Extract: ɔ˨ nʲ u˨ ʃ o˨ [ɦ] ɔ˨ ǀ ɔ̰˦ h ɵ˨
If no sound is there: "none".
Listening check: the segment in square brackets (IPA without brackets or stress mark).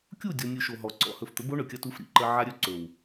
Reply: ɦ